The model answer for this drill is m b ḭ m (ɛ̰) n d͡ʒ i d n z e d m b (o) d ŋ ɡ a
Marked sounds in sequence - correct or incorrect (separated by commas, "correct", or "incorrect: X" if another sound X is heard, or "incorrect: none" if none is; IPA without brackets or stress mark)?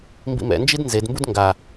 correct, incorrect: u